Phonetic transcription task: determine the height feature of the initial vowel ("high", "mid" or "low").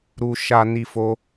high